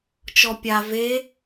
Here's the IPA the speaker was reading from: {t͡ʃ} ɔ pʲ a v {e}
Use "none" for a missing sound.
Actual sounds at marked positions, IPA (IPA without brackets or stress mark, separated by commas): t͡ʃ, e